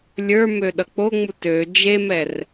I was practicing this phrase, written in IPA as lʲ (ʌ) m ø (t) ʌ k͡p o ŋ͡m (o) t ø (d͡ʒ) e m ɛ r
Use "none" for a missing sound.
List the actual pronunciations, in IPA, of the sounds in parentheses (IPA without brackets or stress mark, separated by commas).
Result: ə˞, ɗ, u, d͡ʒ